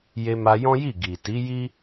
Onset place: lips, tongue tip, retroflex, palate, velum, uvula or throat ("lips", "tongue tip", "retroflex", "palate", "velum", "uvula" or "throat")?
palate